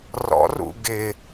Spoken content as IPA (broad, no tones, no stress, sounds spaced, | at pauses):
r ɔ̰ r ṵ ɡ ɪ